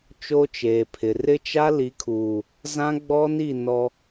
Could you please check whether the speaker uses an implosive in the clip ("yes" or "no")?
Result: no